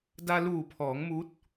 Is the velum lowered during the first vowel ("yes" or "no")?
no